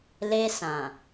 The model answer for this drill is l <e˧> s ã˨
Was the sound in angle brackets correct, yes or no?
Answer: yes